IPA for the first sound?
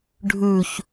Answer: ɖʱ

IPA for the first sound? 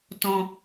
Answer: t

